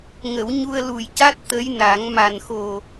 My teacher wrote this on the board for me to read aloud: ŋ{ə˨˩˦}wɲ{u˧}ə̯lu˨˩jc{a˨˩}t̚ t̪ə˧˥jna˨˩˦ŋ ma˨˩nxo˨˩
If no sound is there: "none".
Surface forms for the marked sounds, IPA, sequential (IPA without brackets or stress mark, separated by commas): ə˨˩˦, u˧, a˦˥